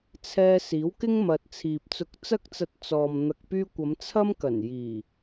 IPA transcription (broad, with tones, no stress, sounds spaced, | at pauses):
t͡sʰ ɛː˧ s iː˨˥ w k ɪ˥ ŋ m ɐ˨ t̚ t͡sʰ iː˨ p̚ t͡s ʊ˧ k̚ t͡s ɐ˥ k̚ t͡s ɐ˧ t̚ t͡s ɔː˨ m n̪ ɐ˧ k̚ p yː˥ kʷ ɐ˨˧ m t͡sʰ ɐ˥ m k ɐ˨˩ n j iː˨˩